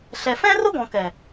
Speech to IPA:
ɬ ɛ˧ f ɛ̃˦ r ʊ˦ ɡ ɔ̃˨ k ɛ˨

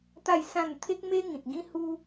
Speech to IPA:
t̪ a˥˧ j s ã˥˧ n t̪ʰ e˦ k̚ m e˦ ŋ ĩ˨ t̚ ɡ ĩ˦ h u˦

